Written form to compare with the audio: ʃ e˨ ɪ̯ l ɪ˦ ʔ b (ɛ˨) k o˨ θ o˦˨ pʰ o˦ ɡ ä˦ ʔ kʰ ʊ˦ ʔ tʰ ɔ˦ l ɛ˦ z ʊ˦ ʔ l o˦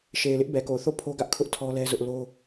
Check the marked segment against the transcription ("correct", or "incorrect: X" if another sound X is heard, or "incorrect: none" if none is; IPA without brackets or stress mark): correct